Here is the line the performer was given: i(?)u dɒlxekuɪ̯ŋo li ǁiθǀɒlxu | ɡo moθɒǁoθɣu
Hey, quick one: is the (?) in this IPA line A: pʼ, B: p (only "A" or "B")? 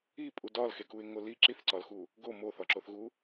A